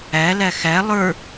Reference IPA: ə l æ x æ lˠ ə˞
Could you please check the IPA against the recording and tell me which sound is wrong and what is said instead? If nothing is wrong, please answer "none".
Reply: ə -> æ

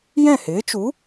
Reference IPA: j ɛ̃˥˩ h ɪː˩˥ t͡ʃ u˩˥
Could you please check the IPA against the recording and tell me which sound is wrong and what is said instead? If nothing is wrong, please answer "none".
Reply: none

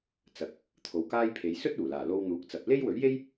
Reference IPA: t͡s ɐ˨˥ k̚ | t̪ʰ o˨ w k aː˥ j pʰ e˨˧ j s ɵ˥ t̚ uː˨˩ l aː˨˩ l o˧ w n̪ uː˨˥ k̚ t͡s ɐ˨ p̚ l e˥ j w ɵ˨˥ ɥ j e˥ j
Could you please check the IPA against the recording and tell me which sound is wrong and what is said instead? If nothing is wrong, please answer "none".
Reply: none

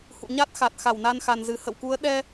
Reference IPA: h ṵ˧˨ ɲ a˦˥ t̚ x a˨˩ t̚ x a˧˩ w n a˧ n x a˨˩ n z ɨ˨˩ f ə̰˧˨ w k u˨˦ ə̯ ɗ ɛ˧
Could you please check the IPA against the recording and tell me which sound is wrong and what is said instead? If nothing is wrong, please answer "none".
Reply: f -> h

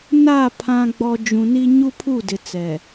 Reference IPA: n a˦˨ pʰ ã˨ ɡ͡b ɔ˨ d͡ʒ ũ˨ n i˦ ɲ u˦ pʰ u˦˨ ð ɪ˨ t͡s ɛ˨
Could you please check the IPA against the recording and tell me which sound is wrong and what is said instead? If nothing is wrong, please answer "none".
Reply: ð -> d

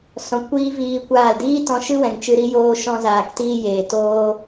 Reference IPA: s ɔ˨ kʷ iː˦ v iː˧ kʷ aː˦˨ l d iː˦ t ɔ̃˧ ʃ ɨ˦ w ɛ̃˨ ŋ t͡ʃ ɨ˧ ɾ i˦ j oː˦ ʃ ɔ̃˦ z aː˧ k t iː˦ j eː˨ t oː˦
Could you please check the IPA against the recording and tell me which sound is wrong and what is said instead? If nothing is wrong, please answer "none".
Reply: ɔ˨ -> ɔ̃˨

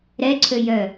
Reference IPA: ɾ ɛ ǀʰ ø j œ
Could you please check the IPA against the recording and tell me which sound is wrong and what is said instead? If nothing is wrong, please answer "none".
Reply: none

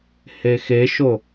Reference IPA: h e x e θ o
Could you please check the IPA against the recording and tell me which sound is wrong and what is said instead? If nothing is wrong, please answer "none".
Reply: θ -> ʃ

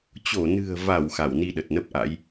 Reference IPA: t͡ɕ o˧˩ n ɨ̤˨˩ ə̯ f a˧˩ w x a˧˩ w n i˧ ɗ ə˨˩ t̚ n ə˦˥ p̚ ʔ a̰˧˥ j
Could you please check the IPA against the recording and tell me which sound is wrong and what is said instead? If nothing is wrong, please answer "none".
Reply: f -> v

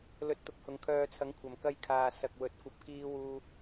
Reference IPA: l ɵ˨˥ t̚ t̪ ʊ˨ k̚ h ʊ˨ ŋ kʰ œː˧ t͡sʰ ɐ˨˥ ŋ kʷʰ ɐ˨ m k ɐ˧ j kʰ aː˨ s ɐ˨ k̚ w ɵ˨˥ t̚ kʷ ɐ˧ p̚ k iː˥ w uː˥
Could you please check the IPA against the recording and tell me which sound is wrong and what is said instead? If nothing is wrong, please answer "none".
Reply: none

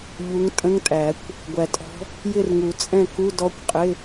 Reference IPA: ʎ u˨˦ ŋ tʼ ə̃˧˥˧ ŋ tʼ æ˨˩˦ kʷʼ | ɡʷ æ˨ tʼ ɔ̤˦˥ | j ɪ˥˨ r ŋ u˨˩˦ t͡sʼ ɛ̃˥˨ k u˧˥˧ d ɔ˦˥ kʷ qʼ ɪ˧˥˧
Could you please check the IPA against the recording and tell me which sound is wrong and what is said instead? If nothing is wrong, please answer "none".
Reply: kʷʼ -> kʷ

